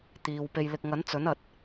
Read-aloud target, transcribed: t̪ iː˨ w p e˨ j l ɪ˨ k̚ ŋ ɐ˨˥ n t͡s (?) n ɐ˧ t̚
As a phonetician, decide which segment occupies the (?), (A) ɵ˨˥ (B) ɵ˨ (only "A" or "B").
A